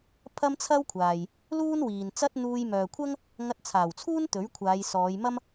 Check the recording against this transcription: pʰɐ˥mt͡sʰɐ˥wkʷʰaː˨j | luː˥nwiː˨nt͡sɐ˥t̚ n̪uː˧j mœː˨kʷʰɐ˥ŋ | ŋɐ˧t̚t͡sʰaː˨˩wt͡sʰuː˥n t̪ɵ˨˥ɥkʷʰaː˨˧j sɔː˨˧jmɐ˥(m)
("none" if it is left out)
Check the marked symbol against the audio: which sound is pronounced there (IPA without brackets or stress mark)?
m